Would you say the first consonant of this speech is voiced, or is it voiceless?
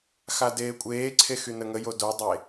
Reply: voiceless